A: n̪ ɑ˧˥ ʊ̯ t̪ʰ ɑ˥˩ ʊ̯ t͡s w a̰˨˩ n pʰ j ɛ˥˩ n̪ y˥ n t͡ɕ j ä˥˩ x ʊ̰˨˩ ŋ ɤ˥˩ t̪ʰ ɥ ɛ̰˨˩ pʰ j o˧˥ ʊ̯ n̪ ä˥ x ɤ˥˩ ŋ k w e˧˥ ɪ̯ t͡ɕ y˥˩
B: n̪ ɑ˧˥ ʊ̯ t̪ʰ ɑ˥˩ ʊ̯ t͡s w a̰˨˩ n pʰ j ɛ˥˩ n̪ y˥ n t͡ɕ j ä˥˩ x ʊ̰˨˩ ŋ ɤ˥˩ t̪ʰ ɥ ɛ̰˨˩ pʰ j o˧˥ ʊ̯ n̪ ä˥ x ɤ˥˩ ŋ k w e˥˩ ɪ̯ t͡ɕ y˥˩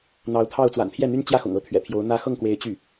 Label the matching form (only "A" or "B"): A